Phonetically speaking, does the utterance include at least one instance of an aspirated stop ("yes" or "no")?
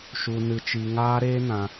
no